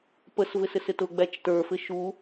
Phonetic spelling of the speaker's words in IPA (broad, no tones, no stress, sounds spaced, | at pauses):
p ə s v ɪ s ɪ s ɪ t ʊ ɡ͡b æ t͡ʃ t ə˞ f ɪ ʃ u